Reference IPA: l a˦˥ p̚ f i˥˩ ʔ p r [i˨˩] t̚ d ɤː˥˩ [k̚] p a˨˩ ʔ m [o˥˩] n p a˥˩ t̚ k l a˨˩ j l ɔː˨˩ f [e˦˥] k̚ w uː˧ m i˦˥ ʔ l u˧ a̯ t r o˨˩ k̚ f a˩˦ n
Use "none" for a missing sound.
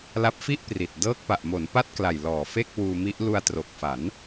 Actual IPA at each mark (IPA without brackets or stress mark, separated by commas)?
i˨˩, k̚, o˩˦, e˥˩